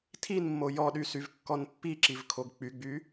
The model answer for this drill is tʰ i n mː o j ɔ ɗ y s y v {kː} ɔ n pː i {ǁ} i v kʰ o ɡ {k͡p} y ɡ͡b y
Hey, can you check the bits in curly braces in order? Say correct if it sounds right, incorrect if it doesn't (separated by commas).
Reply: correct, correct, correct